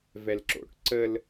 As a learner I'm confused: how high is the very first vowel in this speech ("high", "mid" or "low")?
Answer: mid